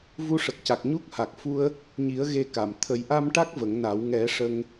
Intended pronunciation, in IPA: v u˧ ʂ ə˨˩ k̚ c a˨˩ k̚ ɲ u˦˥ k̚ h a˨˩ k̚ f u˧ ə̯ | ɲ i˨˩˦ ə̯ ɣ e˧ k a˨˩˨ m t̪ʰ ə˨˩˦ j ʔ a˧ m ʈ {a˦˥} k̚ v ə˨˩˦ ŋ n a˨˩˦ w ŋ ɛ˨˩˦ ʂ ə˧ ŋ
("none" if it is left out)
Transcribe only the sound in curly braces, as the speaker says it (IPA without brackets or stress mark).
a˦˥